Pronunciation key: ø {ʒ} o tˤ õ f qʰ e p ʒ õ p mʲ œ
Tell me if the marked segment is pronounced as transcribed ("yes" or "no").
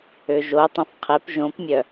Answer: yes